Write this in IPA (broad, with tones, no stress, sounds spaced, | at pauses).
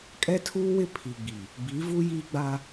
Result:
kʼ ɛ˦ tʰ uː˦ w ɪ˦ pʰ i˨ ɡ͡b i˨ | b i˨˦ v u˦ j i˦ ɡ͡b a˦